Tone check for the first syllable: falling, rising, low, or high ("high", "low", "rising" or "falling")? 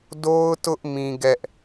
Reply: high